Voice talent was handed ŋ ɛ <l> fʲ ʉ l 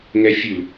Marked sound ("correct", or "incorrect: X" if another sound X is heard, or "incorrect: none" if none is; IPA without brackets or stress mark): incorrect: none